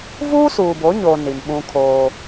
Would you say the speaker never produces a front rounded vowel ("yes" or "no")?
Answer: yes